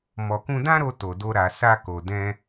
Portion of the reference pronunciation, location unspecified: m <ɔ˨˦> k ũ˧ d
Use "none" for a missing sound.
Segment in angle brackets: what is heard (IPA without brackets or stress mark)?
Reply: ɔ˨